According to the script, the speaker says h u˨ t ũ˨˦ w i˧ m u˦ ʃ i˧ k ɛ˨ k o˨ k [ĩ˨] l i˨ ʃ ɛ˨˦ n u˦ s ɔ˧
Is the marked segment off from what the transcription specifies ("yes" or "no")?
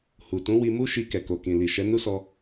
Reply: no